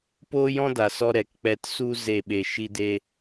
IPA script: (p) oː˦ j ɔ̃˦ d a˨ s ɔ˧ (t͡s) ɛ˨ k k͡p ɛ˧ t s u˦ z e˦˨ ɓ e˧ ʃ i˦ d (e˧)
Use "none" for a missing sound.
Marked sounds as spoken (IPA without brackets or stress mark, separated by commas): p, ɾ, e˦